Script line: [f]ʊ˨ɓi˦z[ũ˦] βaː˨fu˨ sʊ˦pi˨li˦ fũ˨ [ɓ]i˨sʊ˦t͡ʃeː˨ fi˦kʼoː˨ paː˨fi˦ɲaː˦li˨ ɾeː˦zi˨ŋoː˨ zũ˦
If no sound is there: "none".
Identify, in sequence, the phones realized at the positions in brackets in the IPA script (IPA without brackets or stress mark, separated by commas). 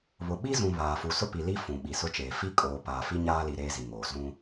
β, ũ˨, ɓ